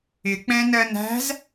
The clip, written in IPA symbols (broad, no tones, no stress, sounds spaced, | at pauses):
ɪ k͡p ɛ̃ n ɜ n æ̤ z